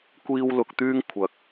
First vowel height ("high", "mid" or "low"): high